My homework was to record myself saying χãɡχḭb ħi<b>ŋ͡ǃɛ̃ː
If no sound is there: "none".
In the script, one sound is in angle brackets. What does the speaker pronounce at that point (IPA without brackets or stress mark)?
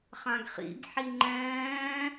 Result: none